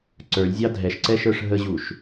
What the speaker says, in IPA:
ǀə˞lʲzʲɑ dʱɛʃǀɛʃə˞ʂ ɦəʑuʃ

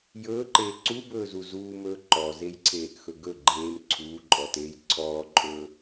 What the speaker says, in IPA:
jɵːǃeː ǀubɵːzu zuːmɵː ǃɔzejǀʰeːʔxɵ ɡɵ ɡ͡ǃeːm ǀʰuːǃʼɔteːj ǀʰɔːǃʼɵː

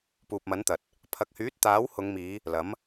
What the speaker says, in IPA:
puː˨p̚mɐ˨˥nt̪ɐ˨t̚ | pʰɐ˨k̚hyː˨˥t̚ t̪aː˨˥whʊ˨˧ŋmiː˨˧ | lɐ˨˥m

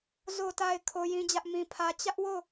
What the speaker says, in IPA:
zo˨ta˨ɪ̯ kʰo˦jĩ˦d͡ʑä˦ʔ mĩ˦pʰä˦ t͡ɕä˦ʔwo˦˨

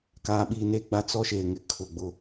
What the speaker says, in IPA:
kaː˨ɓiː˨neː˦ɡ͡ba˦˨ t͡sɔ˦ʃeː˨ŋɪ˨ kʰʊ˨ ɡ͡bʊ˦

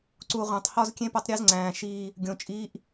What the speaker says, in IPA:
ǀu˨ ʁʷæ̃˨tˤhɒ˦zkʲẽ˦ po˦tˤɾʲe˦zŋ͡ǀæ̃ː˨ ʃiː˦ | ɡʲõ˨t͡ʃʼiː˦ʔ

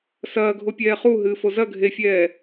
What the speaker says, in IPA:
sɐːɡʱopʲɛː χuɦɨːfo zɐ ɡʱefʲɛː

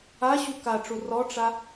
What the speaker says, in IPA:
aɕu kaʈ͡ʂu rɔʈ͡ʂa

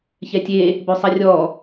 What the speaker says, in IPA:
çɛtʲe | bøsˤɛrʲɔ

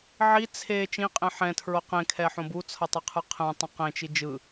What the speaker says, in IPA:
ʕi t͡sʰe t͡ʃĩqʼẽ ħɛ̃tʰɹo qẽkʰɛħõ but͡sʰʌtˤɛqʰɯ qʰɛ̃tˤũ qẽt͡ʃi d͡ʒɯ

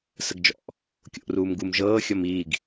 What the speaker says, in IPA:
səɡd͡ʒɔ̰ʔ | kʲo̰ʔruːmɡum ʒɤː xʲɔmiːɡ

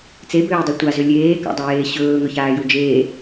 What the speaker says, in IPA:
t͡sebøːdˤu tʷazø lʲeːka̰dˤøjeː ɕɵːŋɵçaːju d͡ʒeː

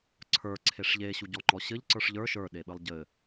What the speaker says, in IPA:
ǀʰə˞ǀʰeʂ ʎeɕuɟɔ ŋ͡ǃɔɕɘʎ ǀə˞ʂʎə˞ ʃə˞ɗeɓɘlˠ ɟɘ

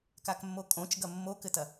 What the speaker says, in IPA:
kakmːokʼõt͡ʃ ɡɐmːokɘtɐ

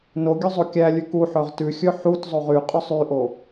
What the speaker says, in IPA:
no ɡʲøzˤokʲælʲʉ kuħœʁ tʉxʲɵ ħut zˤoʁyqʼøsˤ yʔo

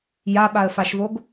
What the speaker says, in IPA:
jaɓaə̯faʃvoɡ

